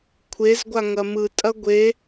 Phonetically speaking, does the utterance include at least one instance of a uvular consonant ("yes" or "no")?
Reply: no